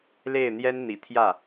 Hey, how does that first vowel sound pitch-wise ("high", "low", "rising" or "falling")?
falling